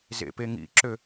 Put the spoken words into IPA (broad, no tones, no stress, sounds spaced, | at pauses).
z ḛ p e ŋ ḭ ǁ ø